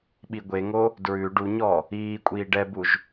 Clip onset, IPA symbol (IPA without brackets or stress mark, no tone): ɓ